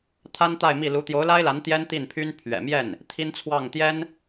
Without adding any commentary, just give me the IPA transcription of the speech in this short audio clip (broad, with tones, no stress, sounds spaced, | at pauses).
t̪ʰ a˥ n t̪ a˥˧ ɪ̯ m i˥˩ l u˧˥ t̪ j o˧˥ ʊ̯ l a˥ ɪ̯ l a˧˥ n t̪ j ɛ˥ n t̪ i˥˩ n pʰ y˥ n pʰ ɥ ɛ̰˨˩ m j ɛ˥˩ n | t̪ʰ i˥ n t͡sʰ w ɑ˥˩ ŋ t̪ j ɛ˥ n